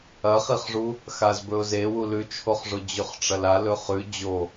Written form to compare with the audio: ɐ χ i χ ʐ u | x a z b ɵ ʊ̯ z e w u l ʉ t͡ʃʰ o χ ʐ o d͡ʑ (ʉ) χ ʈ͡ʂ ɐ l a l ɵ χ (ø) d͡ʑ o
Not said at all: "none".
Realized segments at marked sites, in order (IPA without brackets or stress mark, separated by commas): ʉ, ʉ